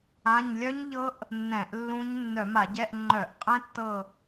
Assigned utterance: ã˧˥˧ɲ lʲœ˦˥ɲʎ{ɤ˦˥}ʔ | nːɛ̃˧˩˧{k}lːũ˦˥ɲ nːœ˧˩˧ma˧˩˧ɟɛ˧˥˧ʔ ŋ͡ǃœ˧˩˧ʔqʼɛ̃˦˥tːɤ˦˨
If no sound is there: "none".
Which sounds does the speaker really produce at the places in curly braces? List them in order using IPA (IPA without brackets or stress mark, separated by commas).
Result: ɤ˦˥, ʔ